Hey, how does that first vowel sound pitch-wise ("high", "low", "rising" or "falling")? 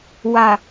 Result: low